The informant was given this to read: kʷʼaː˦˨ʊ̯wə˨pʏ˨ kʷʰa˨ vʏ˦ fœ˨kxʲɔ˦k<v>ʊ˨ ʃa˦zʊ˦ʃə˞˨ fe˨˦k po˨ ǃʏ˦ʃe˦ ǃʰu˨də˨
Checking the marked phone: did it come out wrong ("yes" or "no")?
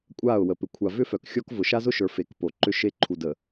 no